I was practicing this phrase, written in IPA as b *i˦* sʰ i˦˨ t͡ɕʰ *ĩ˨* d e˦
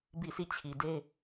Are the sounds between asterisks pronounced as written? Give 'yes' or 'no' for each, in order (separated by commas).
no, no